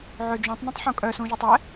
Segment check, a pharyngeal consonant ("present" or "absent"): present